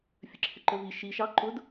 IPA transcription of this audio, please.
fʲ ə ǁʰ ɪ ǃ ə v i ʃ i ʃ ɑ ǃ ʊ d

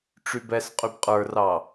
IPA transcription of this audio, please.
ʈ͡ʂ y b ɛ s qʼ y b qʼ ə˞ r ɑ

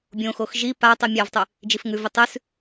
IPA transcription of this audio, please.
bʲ õ x o x ʒ i p a tˤ i mʲ a v tˤ ʉ | d͡ʒ i f ŋ ʉ v i tˤ ʉ s

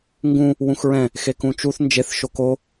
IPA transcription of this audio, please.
ŋ ɡ ũ | w ũ x ɹ ɛ̃ | x e k ũ t͡ʃ u θ n d͡ʒ e θ ʃ o k o

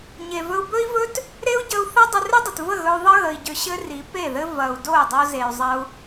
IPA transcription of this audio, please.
ɲ e˨ v ɵ˧ u̯ b ɵ˦ i̯ v ɵ˦ t | ɾ e˦ u̯ ɟ ə˧ u̯ θ ɐ˦ dˤ ə˧ r ʏ˦ dˤ ə˨ t v ə˦˨ ɣ ɵ˧ u̯ ðˤ ə˦ ɣ ə˨ i̯ ɟ ʏ˧ ɕ ɘ˦ r i˨˦ p e˦˨ ð ɘ˦ v ɐ˨ u̯ d o˦˨ y̯ dˤ o˧ z e˨ y̯ zˤ ɐ˧ u̯

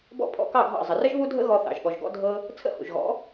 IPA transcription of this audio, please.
b ɔ̰˥˩ pʰ ɔ̰˧ k ɑ˥˩ ɡʱ ɑ̰˥˩ zˤ ə˩ r ə˥ ʒ β u˥ dʱ ə̰˥ ɣ ɔ˧ θ ɑ̰˩ ʒ ɠ ɔ˩ ʒ ɡ ɔ̰˧ dʱ ɤ˧ | t͡sʰ ə̰˥˩ h ṵ˩ ʒ ɣ ɔ̰˩˥

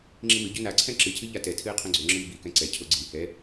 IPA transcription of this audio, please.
ŋ͡ǁ ĩ m ɨ ɟ ø n a ǀʰ ɛ̃ ǁ ɨ cʰ ɨ ʎ a t ɛ tʰ ɨː qʰ õ ɡ͡ǀ ø ŋ͡ǁ ɨː b i k ɛ̃ ǀ ɛ cʰ o ɡ͡ǀ i h ɛ

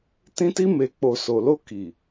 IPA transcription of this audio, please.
t ĩ˧ t i˧ m e˨ k͡p o˨ s o˨ l o˧ k i˨

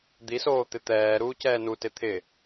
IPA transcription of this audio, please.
d̪ i s oː t̪ ɪ t̪ ɛː ɾ uː c ɛː n u t ɪ t̪ʰ ɪ

